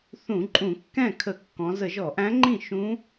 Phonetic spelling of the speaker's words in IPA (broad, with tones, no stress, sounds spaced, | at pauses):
θ ũ˧˩˧ ǃʼ ũ˧˩˧ kː ɛ̃˥˩ kʰ ə˧˩˧ kː ɔ̃˩˧ z ə˧˩˧ ʒ ɔ˧˩˧ ʔ æ̃˧˥ ŋ͡ǃ ĩ˥˩ ʃ ũ˧˥